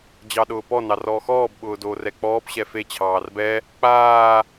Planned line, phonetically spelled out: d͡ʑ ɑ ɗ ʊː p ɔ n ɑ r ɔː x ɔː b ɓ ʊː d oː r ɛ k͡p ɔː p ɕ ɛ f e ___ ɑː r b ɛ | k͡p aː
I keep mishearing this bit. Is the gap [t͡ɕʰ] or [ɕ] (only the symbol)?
t͡ɕʰ